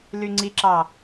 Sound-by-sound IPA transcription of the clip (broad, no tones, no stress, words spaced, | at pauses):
lyŋ͡ǀiǁɑ